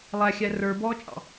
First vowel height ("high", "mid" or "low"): low